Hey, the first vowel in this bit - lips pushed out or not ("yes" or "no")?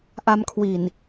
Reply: no